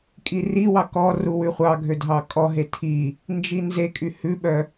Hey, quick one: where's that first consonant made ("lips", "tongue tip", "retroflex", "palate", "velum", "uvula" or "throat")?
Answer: velum